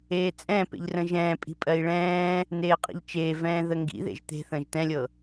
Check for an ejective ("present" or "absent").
present